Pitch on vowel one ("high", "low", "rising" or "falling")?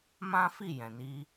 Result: high